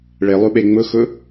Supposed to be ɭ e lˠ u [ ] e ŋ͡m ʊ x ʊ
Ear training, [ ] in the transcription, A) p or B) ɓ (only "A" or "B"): B